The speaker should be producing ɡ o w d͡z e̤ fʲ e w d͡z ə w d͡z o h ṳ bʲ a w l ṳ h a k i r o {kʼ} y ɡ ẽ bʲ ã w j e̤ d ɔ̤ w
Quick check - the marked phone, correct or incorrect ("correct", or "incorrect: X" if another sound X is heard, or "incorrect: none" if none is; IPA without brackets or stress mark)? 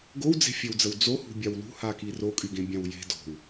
correct